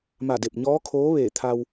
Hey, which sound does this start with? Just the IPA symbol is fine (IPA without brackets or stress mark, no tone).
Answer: m